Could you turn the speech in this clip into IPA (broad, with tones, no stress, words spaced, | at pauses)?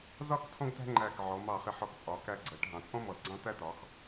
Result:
zɒ˥˧k tʰɔ̃˥ɡtæ̤˥ŋ͡ǃæ˧˩k ʕɔ˩˧mɑ˧˩χɪ˧˩ ħɔ˧k pʼɒ˩˧kæ˧ɡ͡ǀɜ˩˧ʈ ɦɑ̃˩˧t͡sʼɔ̃˥ mɔ˧˩zɡ͡ǀɑ̃˥t̪æ˥ tɒ˩˧x